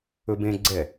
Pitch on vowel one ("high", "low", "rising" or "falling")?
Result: high